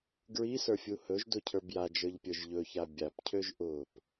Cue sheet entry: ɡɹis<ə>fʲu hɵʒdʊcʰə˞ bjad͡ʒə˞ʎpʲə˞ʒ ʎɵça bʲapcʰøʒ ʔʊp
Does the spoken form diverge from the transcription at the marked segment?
yes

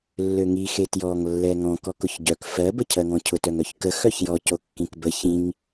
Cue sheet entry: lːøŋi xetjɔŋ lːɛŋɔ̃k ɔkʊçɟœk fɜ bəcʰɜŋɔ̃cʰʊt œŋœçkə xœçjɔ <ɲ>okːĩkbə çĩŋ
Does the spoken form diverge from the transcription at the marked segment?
yes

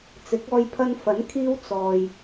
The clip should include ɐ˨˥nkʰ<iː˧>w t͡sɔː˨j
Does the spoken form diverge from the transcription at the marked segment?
no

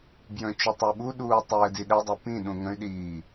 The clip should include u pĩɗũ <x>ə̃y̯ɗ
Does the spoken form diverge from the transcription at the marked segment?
yes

